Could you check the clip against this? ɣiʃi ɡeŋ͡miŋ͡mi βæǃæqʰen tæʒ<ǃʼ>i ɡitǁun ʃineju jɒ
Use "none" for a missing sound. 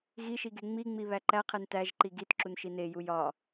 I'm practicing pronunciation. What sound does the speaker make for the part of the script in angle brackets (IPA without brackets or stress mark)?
ǃ